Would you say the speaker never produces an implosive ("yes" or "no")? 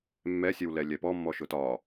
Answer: yes